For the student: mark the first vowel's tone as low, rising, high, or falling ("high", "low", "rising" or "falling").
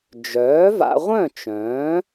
rising